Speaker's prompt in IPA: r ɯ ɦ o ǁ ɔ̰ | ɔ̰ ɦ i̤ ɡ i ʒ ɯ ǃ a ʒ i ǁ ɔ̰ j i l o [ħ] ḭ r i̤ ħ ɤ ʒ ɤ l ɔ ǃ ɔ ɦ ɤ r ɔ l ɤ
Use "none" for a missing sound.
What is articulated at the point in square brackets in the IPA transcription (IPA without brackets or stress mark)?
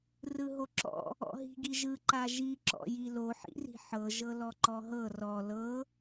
ħ